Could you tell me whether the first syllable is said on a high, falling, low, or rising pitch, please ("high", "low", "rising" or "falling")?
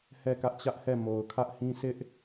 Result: falling